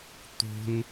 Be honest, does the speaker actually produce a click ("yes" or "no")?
no